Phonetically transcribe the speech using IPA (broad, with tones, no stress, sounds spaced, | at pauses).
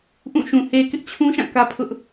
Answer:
ʔ ũ˦˨ ʃ ũ˨ h e˨ k ɪ˦ ʔ t͡ɕʰ ũ˦ ʃ ã˦˨ k ä˦ pʰ ʊ˦ ʔ